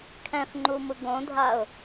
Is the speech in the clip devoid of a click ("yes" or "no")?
no